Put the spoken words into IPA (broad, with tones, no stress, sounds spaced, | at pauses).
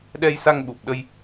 ɗ ɛ˧ j s a˧ ŋ ɓ u˨˩ p̚ ɗ ə˧ j